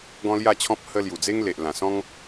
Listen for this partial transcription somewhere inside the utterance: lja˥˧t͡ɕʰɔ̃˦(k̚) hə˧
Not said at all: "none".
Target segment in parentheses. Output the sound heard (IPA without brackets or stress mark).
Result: p̚